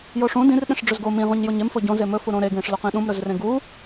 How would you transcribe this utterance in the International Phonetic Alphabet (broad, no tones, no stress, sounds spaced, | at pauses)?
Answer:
j o ʂ ũ d ĩ r ɗ ẽ ʂ ɖ͡ʐ ɵ z ɡ o m ĩ ʁ ũ ɲ j o ɲ e m f o ɟ õ z e m ɵ f u ɾ õ ɾ e ɡ ẽ ʂ l o q ĩ ɗ ũ m ɾ ɵ z r ẽ ɡ u